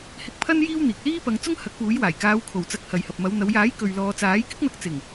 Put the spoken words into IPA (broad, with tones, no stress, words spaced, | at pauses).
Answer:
hɪ˧k̚pʰɐ˥n jiː˥wn̪iː˨k̚ liː˥ pɐ˨˧ŋt͡sʊ˥ŋ hɐ˨˥k̚ puː˨˥jwaː˨˩j kaː˨˧wkʰo˨˩wt͡sɐ˨˥k̚ hɐ˨jhɐ˨p̚mɐ˨˧wn̪ɐ˨˧w jaː˨˥j kɵ˨ɥlɔː˨ t͡saː˨˥jkɪ˥k̚n̪ɐ˨˥k̚ t͡sɪ˨˩ŋ